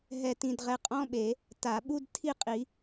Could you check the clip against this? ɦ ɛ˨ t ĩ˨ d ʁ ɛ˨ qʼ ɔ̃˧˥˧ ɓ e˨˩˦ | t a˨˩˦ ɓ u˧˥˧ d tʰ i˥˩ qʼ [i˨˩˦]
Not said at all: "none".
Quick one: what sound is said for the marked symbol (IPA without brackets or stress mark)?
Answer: i˨˩˦